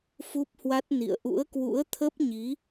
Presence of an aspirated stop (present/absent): present